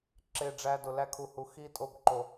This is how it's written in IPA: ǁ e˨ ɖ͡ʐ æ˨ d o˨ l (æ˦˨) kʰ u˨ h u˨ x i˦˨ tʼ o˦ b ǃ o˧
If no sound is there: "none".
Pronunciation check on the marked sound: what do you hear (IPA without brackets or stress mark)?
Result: æ˧